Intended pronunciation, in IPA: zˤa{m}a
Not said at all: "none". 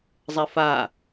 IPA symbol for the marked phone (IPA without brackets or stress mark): f